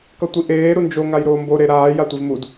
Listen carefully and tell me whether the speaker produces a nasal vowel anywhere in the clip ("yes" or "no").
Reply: no